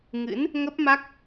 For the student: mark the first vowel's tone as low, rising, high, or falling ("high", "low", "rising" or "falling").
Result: rising